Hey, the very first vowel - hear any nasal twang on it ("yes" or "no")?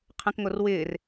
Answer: yes